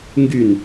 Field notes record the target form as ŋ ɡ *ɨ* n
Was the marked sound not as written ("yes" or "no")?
yes